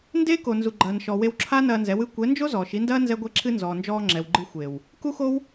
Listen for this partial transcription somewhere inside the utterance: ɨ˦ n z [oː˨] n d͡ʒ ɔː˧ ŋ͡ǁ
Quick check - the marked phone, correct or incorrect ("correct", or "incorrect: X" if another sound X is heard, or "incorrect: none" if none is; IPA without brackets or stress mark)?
incorrect: ɔː˨